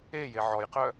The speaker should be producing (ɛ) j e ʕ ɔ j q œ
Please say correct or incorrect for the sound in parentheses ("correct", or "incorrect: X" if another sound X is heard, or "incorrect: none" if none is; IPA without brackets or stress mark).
incorrect: e